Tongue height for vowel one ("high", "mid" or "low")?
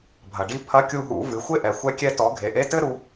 low